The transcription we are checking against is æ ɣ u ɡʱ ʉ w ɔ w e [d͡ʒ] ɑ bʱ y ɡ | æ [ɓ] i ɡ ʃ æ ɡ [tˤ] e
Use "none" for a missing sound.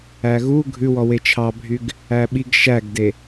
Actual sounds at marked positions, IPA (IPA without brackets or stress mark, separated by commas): t͡ʃʰ, ɓ, d